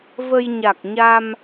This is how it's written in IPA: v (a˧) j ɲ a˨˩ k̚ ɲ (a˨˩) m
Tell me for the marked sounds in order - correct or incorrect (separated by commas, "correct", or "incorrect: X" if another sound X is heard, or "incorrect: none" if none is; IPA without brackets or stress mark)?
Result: incorrect: ə˧, incorrect: a˧